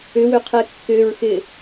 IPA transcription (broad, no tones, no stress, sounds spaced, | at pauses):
ʏ w ʏ qʰ ɛ kː ʏ ɹ x ɪ